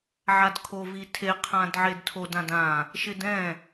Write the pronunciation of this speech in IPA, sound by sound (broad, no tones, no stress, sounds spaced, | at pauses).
ʕ a d kʰ o v i tʰ e qʰ ã d ʕ e d tʰ o d ã d ã | ʃ ɪ d ɛ̃